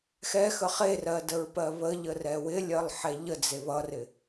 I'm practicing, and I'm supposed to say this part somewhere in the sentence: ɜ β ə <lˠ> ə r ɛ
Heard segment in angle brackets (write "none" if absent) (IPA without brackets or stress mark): ʎ